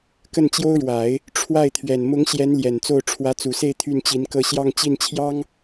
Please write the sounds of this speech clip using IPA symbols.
k ə˥˩ n t͡ɕ j o˥ ʊ̯ ɻ w a˨˩˦ ɪ̯ | ʈ͡ʂʰ w a˥˩ ɪ̯ t̪ʰ ɥ ɛ˨˩ n m ʊ˧˥ ŋ ɕ j ɛ˧˥ n l j ɛ˨˩ n t͡s o˥˩ ʊ̯ ʈ͡ʂʰ w ä˧˥ t͡s u˨˩ s e˥˧ ɪ̯ t̪ʰ y˥˩ n t͡ɕ i˧˥ n k ɤ˥˧ ɕ j ɑ˥˧ ŋ t͡ɕ i˥˩ n t͡ɕʰ j ɑ˥ ŋ

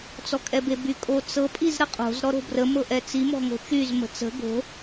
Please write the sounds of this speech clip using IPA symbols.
t͡s ɔ kʼ ɛ b e b y kʼ o t͡s ɤ pʼ i z ɾ ə qʼ o̤ z ɾ ɔ ɾ o̤ b r ə m ɤ ʔ ɛ t͡s i m ɔ̤ ŋ o̤ t͡ʃ y z m ə̤ t͡s ə̤ ɡ o̤

